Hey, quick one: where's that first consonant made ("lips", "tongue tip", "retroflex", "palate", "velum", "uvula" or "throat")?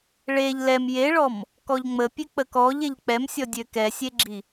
retroflex